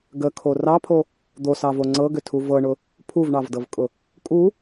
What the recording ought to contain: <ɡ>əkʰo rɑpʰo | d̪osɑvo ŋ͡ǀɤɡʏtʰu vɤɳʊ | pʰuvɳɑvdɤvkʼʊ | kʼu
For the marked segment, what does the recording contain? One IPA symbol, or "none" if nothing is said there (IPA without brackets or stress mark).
ɡ